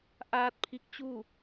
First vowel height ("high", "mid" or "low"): low